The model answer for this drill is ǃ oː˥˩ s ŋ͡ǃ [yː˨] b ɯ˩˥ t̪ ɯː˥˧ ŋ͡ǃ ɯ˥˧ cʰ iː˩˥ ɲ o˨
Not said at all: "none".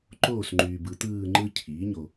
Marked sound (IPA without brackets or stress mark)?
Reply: yː˨